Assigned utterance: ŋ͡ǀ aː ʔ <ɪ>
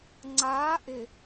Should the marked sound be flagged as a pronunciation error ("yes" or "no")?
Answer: no